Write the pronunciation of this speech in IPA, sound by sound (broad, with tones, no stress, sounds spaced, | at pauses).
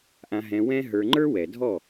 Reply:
ʔ ã˧ ɦ ɛ̃˧ w ɛ̃˦ ɦ ə˞˧ ŋ͡ǃ ə˞˦ w ɛ˨ dʱ ɔ˦˨